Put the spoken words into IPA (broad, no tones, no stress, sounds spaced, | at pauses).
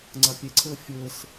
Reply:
ŋ͡ǀ a pʲ ɛ ǀʰ əː fʲ əː s